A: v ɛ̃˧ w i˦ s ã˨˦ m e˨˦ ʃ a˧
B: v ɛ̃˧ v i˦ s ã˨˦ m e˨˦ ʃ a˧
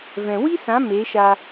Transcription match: A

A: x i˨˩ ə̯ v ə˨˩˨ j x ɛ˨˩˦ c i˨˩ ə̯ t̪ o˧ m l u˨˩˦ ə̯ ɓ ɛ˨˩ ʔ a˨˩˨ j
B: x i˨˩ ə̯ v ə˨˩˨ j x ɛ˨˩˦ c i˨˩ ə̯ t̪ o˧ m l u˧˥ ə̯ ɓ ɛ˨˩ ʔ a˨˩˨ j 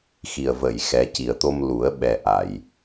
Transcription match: A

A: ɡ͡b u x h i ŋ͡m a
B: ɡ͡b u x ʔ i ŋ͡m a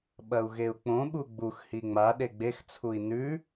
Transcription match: A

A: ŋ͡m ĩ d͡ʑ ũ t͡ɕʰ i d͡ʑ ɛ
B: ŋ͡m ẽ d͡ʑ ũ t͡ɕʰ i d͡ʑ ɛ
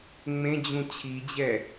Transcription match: B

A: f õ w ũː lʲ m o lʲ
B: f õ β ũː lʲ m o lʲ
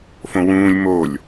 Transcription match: A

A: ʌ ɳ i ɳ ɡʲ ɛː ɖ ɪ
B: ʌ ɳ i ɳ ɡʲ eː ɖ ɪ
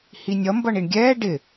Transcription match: A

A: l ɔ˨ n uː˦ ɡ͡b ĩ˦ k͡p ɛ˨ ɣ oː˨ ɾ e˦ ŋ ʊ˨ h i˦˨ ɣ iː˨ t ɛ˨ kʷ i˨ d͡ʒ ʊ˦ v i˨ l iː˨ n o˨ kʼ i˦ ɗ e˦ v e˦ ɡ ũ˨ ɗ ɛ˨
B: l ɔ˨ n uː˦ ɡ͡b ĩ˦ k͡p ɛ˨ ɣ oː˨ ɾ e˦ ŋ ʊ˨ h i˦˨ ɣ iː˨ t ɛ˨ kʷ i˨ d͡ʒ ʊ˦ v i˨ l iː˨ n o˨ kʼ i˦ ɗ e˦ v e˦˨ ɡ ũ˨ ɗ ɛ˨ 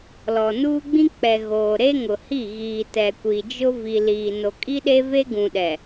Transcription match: A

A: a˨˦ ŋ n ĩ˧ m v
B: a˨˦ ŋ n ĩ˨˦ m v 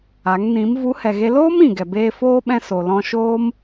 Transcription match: B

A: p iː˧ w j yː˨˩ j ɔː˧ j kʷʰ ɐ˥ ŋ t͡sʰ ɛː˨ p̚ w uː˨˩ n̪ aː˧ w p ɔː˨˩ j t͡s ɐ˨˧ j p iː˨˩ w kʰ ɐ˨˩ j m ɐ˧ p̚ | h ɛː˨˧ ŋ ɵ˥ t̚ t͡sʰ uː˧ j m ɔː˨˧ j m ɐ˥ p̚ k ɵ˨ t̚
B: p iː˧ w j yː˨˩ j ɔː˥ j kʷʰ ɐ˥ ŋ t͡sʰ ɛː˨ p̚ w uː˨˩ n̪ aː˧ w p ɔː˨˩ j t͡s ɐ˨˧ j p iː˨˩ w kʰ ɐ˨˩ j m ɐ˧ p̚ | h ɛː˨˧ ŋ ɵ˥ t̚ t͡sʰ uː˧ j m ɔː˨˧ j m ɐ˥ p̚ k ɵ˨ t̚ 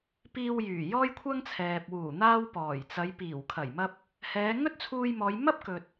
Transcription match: B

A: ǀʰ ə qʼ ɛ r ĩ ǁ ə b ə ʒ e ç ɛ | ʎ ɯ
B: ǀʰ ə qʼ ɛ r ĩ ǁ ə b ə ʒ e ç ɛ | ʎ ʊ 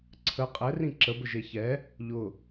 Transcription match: B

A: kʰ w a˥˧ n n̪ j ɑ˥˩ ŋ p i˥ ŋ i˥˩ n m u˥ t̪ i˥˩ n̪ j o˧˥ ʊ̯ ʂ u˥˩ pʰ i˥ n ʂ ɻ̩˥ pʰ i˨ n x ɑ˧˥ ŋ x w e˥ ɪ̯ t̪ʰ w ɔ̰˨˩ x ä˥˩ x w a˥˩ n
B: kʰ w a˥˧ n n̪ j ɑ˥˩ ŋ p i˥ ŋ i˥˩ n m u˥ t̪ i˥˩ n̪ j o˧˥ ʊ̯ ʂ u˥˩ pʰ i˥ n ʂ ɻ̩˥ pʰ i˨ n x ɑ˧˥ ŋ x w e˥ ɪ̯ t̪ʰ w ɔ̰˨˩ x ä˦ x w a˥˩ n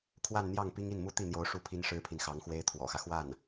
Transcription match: B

